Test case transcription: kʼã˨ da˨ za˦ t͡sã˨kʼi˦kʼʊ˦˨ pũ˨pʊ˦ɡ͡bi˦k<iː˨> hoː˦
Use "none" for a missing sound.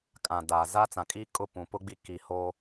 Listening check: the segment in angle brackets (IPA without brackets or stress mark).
iː˨